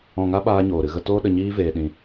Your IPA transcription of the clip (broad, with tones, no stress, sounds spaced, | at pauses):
ɔ̃˨ ŋ a˧ ɓ aː˦ ɲ oː˨ ɾ ɨ˨ ɣ ə˧ t oː˧ ɗ ə˨ ɲ iː˦ v eː˧ ɗ ĩ˧